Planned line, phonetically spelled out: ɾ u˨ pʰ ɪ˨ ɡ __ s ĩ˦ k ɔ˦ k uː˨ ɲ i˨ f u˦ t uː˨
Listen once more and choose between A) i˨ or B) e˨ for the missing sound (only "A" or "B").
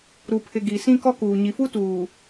A